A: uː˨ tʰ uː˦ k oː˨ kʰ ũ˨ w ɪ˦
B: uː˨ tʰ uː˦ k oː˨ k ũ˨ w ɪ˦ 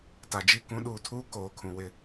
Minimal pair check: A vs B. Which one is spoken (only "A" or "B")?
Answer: A